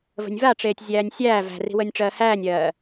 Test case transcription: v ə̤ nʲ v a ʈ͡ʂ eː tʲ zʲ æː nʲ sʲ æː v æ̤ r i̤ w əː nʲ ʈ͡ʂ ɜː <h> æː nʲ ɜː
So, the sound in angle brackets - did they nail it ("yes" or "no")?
yes